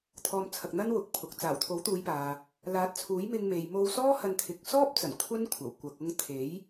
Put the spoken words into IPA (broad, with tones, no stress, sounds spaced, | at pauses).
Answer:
t̪ʰ ɔː˨˧ m t͡sʰ ɐ˨ k̚ n̪ ɐ˥ n w ʊ˨ k̚ pʰ ʊ˨ k̚ t͡s aː˨˩ w t̪ʰ o˨˥ w t̪ uː˨˧ j p aː˨ | l aː˨˥ t̚ t͡sʰ uː˨˥ j m ɪ˧ ŋ m e˨ j m o˧ w s ɔː˥ h ɐ˧ n t̪ʰ ɪ˨˥ k̚ s ɔː˥ p̚ t͡s ɐ˨˩ n kʷʰ ɐ˥ n kʷʰ ɐ˨˩ w kʷ ɐ˨ k̚ ʊ˧ ŋ t̪ʰ e˨˥ j